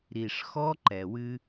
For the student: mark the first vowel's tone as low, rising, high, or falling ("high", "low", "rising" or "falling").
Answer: low